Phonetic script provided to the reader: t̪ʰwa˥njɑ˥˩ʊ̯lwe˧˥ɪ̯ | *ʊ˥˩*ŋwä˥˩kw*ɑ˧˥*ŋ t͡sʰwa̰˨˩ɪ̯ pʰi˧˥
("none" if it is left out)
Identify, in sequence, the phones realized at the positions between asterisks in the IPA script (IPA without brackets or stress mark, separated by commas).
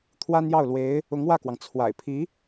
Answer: ʊ˧˥, ɑ˩